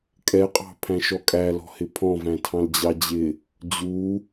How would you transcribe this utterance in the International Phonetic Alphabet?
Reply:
kʼ ɛ qʼ ɑ̤ pʰ æ̃ ʃ ɔ kʼ æ l ɔ̤ h ɪ pʰ ɔ̃ v æ̃ tʰ ɑ̃ l d͡ʑ ɑ d͡ʑ ɪ | d͡ʑ u

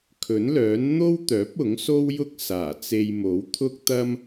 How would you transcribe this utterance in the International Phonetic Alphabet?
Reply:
kʰ ɵ˨˥ n l œː˨˥ n n̪ o˥ w t̪ œː˨˥ p̚ ʊ˨˥ ŋ s o˥ w j ʊ˥ k̚ s aː˨˩ t͡s e˧ j m o˨˥ w t̪ʰ ʊ˥ k̚ t̪ ɐ˥ m

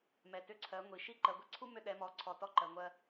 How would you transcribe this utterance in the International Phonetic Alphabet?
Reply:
m ɛ˨ t ʏ˦˨ ǀʰ ɜ˨˦ ŋʷ i˨ ʃ i˦ ǃ ɜ˨ ɡʷ ɛ˦ ǀʰ u˦ m ʏ˦ ɗ ɛ˨˦ m ɔ˨ ǀʰ ɔ˨ t ɔ˦ ǃ ɜ˨ ŋʷ ɜ˦

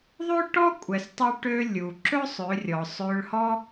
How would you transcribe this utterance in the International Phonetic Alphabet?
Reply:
ðˤ ø˥ ʈ ɔ˥ kʷʼ ɛ˩ s tˤ u˧ ʈ ø˧ lʲ u˩ ǁ ɵ˥ sˤ ø˩˧ rʲ ɔ˩ sˤ ø˧ ɭ h ɔ˥

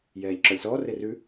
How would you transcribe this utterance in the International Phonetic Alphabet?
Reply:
j ɛː ʎ ǁ ɔ lʲ s ɔː r e r ʉ

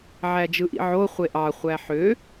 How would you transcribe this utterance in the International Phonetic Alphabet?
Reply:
ʕ æ d͡ʒ ɯ ʔ ḭ ʕ o χʷ e ʔ ɑ χʷ æ ħ ø

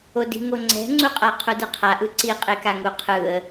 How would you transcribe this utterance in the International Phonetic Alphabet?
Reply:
o d i̤ ŋ o ŋ͡ǀ ɛ̤ ŋ͡ǀ u qʼ a qʰ u d ɯ qʰ a ʔ ɯ ǀ i qʼ e k a ŋ u qʰ ɯ ə̯

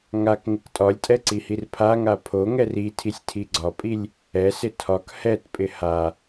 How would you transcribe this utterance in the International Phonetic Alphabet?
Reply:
ŋ a k ŋ ɪ k tʼ ɒ lʲ tʼ ɛ ǀ i h i r pʰ a ŋ a pʰ o ŋ ɛ r i tʰ i sʲ tʰ i ɡ͡ǀ ɒ pʼ i lʲ | ɛ s ɪ tʰ ɒ k h ɛ t pʼ ɪ h a

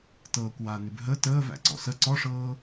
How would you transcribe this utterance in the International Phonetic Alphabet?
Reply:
t ɤː kʷ w aː n ʉ b ɦ ə t əː v æ̰ ǀ ɔ̰ s ə ǀ ɔ ʂ ɤː

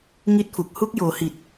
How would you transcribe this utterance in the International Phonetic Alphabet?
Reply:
ŋ i˥˩ t̚ f u˨˩ k̚ h u˦˥ k̚ j oː˩˦ h i˨˩ t̚

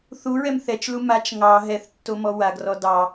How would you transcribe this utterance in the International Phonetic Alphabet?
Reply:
θ u ɹ ɛ m θ ɛ t͡ʃ l u m a t͡ʃ ŋ ɑ ɦ ɛ θ tː o m ɔ w a ɡ r ɔ d ɑ

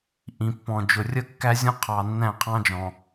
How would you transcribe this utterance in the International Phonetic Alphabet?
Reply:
ʔ ĩ˨ pː ɔ̃˨ d͡ʒ ʊ˨ rʲ ə˦ kː æ˦ zʲ ɔ̃˦ qʰ ɑ˨ nː æ̃˦˨ qʰ ɑ̃˦ d͡ʒ ɔ̃˨

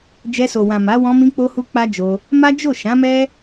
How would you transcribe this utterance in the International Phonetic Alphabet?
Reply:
d͡ʒ ɛ˧ s o˨ w ã˨ m a˨˦ w ɔ̃˧ m ĩ˧ k͡p o˧ h u˧ k͡p a˦ d͡ʒ o˧ | m a˦ d͡ʒ o˦˨ ʃ ã˨˦ m ɛ˦

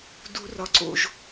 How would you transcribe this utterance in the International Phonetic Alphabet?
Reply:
d u˨˩˦ r ɒ˩ ǀ o̰˩ ʒ

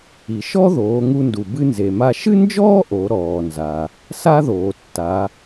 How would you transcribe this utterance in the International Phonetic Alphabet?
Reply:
i˩ ʃ ɔ˥ ð oː˩˧ ŋ u˧ n d u˩ b ɨ˧ n z e˩ m a˧ ʃ ɨ˥ n d͡ʒ ɔː˥ ʔ o˩˧ ɾ ɔː˩ n z a˩ | s a˥ ð oː˩ tː a˩˧

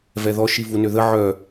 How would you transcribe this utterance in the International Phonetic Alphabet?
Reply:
v ɛ ð ɔ ʃ i v u n ø ð ə ʕ œ

